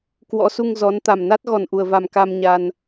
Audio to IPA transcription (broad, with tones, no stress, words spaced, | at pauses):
kwɔ̰˧˥su˧ŋ zɔ˨˦n t̪a˨˩mna˦˥t̚ ɣɔ˨˩nʔu˨˩ə̯va˨˩m ka˧mɲa˧n